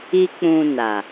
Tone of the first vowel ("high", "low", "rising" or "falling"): high